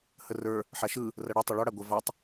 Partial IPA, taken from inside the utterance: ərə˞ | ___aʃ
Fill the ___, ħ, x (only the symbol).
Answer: ħ